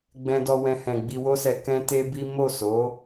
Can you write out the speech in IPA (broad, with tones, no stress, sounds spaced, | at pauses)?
ɡ͡b ɛ̃˧ d ɔ˧ w ɛ̃˧ h ɛ̃˨ ɡ͡b i˧ w o˦ s ɛ˧ k ɛ̃˦ t e˦ b i˦ m o˦˨ s o˨˦